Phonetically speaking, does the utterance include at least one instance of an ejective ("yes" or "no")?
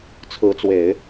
no